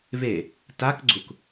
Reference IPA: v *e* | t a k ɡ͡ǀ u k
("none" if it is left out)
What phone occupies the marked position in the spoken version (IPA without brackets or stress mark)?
e